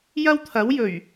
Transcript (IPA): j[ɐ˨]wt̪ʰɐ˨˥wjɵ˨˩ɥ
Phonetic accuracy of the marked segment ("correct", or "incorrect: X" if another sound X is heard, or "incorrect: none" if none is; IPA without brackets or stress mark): incorrect: ɐ˥